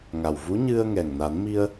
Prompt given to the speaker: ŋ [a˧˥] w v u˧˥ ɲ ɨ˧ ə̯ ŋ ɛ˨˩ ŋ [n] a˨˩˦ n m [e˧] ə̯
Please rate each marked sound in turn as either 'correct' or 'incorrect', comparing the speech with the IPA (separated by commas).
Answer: incorrect, correct, incorrect